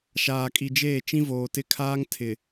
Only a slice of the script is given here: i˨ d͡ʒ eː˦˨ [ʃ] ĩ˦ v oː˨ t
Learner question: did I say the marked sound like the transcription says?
no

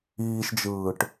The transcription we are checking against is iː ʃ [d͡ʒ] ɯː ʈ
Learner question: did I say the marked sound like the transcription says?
yes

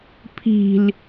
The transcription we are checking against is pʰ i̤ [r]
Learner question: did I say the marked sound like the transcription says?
no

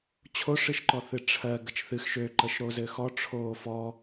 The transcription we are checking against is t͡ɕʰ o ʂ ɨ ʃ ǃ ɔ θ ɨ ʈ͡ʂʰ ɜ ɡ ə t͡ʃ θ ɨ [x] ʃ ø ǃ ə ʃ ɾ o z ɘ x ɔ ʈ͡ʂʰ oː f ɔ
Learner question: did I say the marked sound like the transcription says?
yes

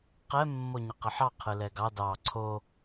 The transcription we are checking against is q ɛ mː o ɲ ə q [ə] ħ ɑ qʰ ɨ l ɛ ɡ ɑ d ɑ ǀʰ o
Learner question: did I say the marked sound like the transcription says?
yes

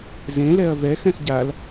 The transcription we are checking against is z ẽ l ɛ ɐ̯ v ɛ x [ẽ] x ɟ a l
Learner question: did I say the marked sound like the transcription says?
no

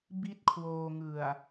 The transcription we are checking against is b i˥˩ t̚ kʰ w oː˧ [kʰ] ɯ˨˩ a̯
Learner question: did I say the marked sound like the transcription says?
no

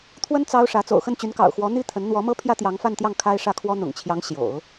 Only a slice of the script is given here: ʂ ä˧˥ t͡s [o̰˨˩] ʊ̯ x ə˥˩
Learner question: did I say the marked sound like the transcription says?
yes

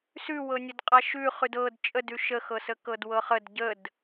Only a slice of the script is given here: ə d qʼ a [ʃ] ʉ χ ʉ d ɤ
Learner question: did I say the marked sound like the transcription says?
yes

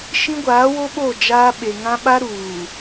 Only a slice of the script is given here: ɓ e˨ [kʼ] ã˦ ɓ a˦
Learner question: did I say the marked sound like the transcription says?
no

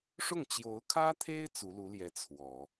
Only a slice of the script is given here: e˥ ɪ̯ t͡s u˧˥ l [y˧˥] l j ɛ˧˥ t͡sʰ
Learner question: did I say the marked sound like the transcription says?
no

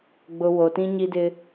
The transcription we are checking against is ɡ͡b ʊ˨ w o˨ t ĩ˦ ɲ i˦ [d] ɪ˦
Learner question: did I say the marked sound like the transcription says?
yes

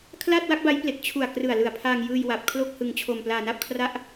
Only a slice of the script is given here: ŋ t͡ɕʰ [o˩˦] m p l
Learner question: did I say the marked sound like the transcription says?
no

